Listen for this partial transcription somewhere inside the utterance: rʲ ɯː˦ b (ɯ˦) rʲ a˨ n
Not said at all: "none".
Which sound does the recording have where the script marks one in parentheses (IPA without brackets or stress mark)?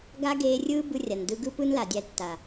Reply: ɯ˦